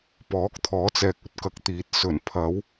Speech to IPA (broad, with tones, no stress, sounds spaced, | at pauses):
p ɔː˨˥ k̚ t̪ʰ ɔː˨˥ t͡s ɛː˨ k̚ ɵ˧ t̚ k ɐ˨˥ k̚ t̪ iː˨˥ t̚ s ɵ˨˩ n pʰ ɐ˨˧ w